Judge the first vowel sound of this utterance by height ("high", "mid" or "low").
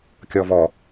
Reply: mid